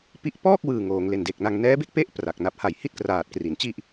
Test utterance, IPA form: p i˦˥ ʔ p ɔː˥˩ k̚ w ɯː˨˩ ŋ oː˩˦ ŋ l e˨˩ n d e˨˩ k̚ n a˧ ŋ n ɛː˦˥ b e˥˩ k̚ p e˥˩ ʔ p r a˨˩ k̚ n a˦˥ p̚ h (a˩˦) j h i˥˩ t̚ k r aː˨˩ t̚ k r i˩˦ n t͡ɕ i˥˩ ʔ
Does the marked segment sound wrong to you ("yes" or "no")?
yes